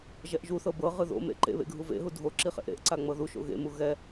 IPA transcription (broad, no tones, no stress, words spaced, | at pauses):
ʒɛʔʒuθɤ bɤ ʁɯðo̰mḛ ǃḛβḛ ɡʱuvḛɦu dʱo ǁiχḛʔɾḛʔǀa ŋ͡mɤðuʃo̰ ɣḛmu ɣɛ